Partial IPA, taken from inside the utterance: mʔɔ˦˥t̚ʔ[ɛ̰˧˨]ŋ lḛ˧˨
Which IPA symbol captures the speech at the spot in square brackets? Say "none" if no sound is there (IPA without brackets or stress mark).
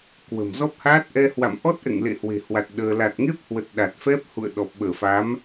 ɛ̰˧˨